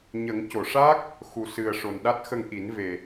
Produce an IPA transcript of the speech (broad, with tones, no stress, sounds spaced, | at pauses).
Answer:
ɲ ə˨˩˦ ŋ c o˨˩˨ ʂ a˦˥ k̚ | x u˨˩ s ɨ˨˩ ə̯ ʂ o˨˩ n ɗ a˦˥ t̚ x ə˧ ŋ ʔ i˨˩˦ n v e˨˩